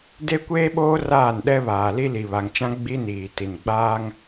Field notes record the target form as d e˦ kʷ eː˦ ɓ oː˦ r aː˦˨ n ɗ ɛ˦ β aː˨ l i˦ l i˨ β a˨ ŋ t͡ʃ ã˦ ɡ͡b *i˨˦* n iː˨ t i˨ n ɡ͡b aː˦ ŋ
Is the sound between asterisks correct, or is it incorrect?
incorrect